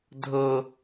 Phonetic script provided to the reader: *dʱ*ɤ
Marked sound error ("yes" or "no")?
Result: no